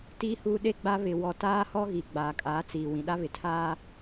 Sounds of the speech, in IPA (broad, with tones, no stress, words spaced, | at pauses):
tiː˦huː˦ ɗe˦ɡ͡ba˦ βɪ˨wɔ˨ taː˦hɔ˦ɣi˨ ɡ͡baː˨kʼaː˨˦t͡siː˨ wĩ˨ɗa˦βɪ˨tʰaː˦